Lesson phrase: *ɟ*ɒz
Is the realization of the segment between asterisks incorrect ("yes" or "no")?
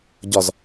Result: no